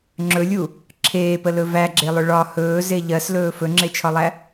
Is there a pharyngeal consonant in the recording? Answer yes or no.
no